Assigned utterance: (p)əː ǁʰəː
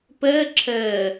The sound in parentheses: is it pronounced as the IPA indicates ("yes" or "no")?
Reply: yes